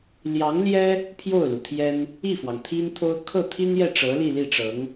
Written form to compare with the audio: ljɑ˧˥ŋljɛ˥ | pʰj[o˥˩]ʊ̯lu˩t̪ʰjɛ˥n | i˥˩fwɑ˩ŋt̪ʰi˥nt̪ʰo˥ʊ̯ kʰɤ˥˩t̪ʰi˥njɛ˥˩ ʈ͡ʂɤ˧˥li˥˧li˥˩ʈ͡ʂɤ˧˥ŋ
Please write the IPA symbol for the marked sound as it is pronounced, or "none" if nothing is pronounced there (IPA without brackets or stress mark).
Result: o˥˩